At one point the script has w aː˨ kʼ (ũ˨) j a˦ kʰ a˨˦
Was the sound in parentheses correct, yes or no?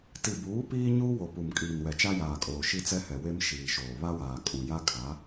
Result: yes